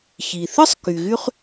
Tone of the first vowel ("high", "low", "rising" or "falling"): low